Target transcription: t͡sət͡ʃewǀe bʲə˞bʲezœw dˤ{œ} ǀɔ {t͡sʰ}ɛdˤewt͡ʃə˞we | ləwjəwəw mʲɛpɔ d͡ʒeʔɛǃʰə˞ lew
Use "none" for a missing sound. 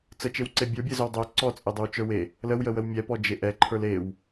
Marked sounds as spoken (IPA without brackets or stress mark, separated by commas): œ, t͡sʼ